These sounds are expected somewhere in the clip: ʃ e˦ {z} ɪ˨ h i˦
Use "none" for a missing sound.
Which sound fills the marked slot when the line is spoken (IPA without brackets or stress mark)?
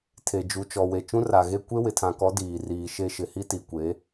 ʃ